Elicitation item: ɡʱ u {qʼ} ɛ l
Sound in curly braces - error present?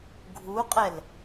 no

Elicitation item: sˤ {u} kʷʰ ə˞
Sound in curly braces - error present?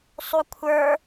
no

